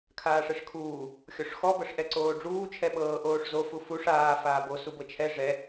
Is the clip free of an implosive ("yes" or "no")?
no